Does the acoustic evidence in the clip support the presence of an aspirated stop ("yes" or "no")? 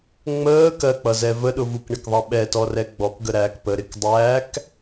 no